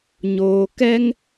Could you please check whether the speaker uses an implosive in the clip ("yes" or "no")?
no